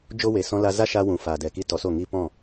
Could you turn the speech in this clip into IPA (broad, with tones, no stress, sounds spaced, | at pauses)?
d͡ʒ o˦ w e˨ s ɔ̃˧ l a˧ z a˦ ʃ a˧ w ũ˨ f aː˨ d ɛ˨ k i˧ t ɔ˨˦ s o˦˨ ŋ i˦ p ɔ̃˦˨